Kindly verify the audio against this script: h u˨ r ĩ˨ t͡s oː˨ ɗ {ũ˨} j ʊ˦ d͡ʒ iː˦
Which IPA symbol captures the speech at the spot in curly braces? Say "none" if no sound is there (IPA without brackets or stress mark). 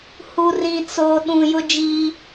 ũ˨